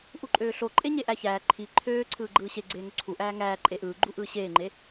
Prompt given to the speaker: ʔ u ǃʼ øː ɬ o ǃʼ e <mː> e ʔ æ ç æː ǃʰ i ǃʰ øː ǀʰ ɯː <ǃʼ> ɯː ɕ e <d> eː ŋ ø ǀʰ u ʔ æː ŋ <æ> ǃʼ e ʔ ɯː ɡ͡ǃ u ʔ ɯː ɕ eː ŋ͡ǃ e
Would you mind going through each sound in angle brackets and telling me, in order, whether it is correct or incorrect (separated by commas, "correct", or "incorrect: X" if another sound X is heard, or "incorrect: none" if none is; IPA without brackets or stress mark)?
incorrect: ɲ, incorrect: ɡ͡ǃ, incorrect: ɡ͡ǀ, incorrect: æː